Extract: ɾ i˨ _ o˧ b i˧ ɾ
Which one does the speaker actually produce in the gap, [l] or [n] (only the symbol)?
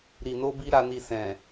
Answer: n